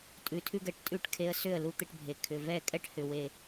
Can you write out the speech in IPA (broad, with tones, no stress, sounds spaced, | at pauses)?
tʼ ʉ˧ tʰ ʉ˦ ɡ ɛ˨ ʈ tʼ ʉ˦˨ ʈ kʰ e˧ ə̯ s ʏ˦˨ ə̯ l u˧ t̪ e˧ ʈ bʱ e˨ kʰ ʏ˨ v ɛ˦˨ kʼ ɛ˦ ʈ h ʏ˨ w e˨